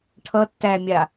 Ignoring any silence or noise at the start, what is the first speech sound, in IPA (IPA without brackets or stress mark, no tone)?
ʈʰ